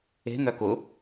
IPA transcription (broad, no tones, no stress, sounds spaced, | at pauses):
e̤ n̪ œ k ʊ